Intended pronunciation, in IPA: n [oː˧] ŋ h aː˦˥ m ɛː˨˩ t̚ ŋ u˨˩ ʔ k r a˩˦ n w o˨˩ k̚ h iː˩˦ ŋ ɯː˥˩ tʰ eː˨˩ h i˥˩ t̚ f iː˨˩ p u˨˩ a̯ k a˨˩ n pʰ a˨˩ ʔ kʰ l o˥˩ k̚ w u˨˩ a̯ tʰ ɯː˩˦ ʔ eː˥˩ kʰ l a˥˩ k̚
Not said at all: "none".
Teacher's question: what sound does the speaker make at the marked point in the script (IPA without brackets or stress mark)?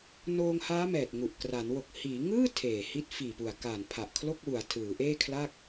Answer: oː˧